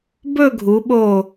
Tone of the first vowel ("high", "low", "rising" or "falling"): falling